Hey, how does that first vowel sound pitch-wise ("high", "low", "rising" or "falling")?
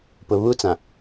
low